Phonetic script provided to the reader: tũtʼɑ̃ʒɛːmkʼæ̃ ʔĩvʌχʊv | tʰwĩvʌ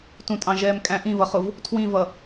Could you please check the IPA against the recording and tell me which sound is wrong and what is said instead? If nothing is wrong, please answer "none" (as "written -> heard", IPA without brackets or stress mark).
none